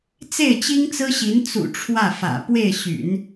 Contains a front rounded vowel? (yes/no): yes